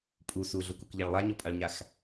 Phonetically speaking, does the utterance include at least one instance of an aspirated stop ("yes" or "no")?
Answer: no